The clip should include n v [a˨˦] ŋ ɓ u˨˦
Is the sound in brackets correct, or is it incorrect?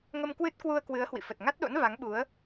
correct